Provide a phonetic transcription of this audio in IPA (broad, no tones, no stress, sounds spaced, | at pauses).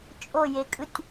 t͡ʃʼ o j e kʼ ɯ tʲ